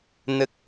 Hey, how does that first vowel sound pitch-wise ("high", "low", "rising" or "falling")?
low